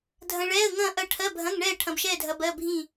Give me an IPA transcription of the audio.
dʱɐ̃˧ɭɛː˧˥˧ə̯ŋɐ̃ː˥˨ ʔɐ˥˨ ʈʰɜ˧˥˧bʱɐ̃˧˥˧ŋɳɛː˥˨ ʈʰɐ̃˧bʃɛː˥˨dʱɐ˧ bɜ˧˥˧bʱĩ˥˨

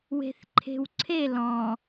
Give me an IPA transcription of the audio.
we̤θǃʰe̤wǀʰe lɔ̃

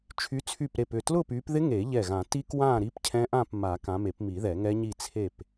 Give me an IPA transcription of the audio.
t͡ʃʰy˨˦t͡sʰy˧˩pɾe˧˩p ʏ˧˩tlʊ˥˨py˨˦pðɪ˦˥ ŋe˨˩˦ʎɛ˧˩ɣã˨˩˦ti˦˥ kwã˥˨ ɾi˦˥pcʰɛ̃˦˥ʔã˥˨pma˨˩˦ kã˨˦me˨˩˦pmi˨˩˦ ðɛ˨˩˦ŋɛ˦˥ɲi˥˨ t͡sʰe˥˨p

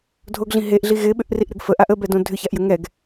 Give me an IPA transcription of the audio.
dʱoɡɮĩ ɦeʔɮi ɣɪɓʏʔriʔɾʏɡ fəʔaʔ əbɛdõ dʱʏçaʔjə ŋɛɡ

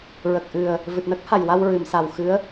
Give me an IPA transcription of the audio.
ɹə˨˩k̚ʔɨ˨˩ə̯ | vɨ˨˩t̚nə˦˥k̚ ha˨˩jwa˧wɹɨ˨˩˨m sa˨˩wxɨ˧˥ə̯

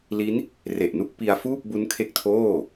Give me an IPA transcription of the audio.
li˦˥n | re˨˩ʔnu˦˥k̚pi˧a̯ fuː˥˩p̚bu˦˥nkʰe˦˥k̚tʰoː˥˩

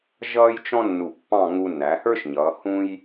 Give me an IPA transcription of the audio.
ʒʌː˥jt͡ʃɔ̃˥nːu˧˩pːɑ̃˥˧ ŋu˧nːæ˩˧hə˞˥ʃɲʌː˩˧ hũ˥j

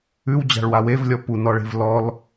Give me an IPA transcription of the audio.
ʉw d͡ʑa̤ɭwawevlʲɔ punɔɭe̤v lɔl

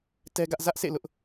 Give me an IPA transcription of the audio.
tɛ˦ɡä˦ʔ zä˦ʔsḛ˦˨lʊ˦ʔ

